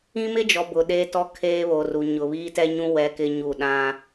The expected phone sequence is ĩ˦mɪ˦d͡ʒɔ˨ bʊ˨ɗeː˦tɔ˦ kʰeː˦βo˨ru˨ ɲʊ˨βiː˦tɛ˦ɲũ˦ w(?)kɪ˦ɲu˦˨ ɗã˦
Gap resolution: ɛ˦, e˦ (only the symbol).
ɛ˦